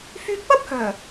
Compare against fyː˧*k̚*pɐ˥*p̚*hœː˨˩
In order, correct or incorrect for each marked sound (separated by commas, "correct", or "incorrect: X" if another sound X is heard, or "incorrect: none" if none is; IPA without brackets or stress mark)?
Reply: correct, correct